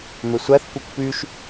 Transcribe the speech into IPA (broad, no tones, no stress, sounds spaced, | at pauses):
m e sʷ æ θ kʷ ɯ kʷ p y ʃ